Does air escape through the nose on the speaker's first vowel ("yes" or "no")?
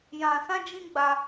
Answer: yes